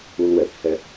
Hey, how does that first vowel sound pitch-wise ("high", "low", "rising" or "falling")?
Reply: high